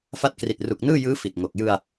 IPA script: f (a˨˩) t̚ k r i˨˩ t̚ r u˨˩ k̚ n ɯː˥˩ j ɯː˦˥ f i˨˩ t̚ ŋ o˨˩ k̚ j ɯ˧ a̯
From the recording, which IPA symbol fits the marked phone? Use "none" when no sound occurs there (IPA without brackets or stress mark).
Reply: a˦˥